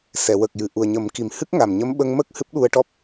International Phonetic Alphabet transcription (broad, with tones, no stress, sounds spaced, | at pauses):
s ɛ˨˩˨ w ə˨˩ k̚ j ɨ˨˩ ʔ u˨˩ ə̯ ɲ ə˨˩˦ m k i˨˩ m h ɨ˦˥ k̚ ŋ a˨˩ m ɲ ə˧˥ m ɓ ə˧ ŋ m ə˦˥ k̚ h ɨ˦˥ p̚ ɗ u˧ ə̯ ʈ ɔ˦˥ p̚